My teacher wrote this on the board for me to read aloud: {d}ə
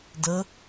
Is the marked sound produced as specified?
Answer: yes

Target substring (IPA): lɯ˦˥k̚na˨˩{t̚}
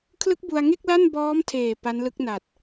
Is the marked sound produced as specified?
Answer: yes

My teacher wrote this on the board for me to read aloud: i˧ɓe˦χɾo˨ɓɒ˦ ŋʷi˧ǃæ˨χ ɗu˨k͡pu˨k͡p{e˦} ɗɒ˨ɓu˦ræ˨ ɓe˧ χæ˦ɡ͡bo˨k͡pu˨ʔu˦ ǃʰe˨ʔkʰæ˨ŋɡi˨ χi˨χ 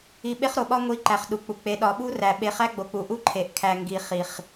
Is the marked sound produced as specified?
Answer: no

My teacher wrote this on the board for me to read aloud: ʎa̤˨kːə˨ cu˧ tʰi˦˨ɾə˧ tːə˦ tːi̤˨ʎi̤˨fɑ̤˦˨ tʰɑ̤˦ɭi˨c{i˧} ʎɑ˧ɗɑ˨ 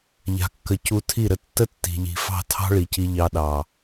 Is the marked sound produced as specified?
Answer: yes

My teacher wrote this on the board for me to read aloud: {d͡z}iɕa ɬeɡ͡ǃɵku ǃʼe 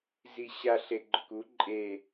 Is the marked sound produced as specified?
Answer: no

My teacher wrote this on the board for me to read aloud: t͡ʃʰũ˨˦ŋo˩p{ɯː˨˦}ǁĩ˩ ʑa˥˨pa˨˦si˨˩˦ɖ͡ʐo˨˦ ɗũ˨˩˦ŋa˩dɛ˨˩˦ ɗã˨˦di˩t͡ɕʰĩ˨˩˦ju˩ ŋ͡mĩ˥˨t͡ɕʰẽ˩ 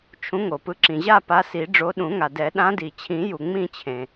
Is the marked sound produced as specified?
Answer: no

